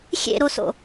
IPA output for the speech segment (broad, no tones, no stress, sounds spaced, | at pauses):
xʲ ḛ ɾ o s o̰